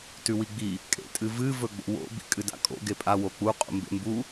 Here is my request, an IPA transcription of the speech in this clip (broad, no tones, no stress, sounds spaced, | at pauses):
t ʉ w i ɡ͡b i | kʼ ḛ tʼ ɨ v ɨ v ɵ ɡ͡b o̰ w o̰ b ḭ kʼ ɨ d a̰ kʼ o̰ ɡ e pʼ a w o k͡p u qʼ ṵ m b ḛ m b u